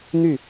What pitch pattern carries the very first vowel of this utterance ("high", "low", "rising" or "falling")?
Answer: falling